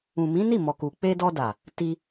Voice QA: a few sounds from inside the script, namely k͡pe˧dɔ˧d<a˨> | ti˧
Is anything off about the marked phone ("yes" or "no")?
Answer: no